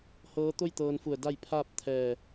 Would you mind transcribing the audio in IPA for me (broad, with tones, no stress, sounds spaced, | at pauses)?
h ɤː˧˥ t̪ o˥˨ j t̪ ɤː˧ n f u˧˩ ə̯ d a˥˨ j pʰ aː˥˨ p̚ t̪ʰ ɛː˧˩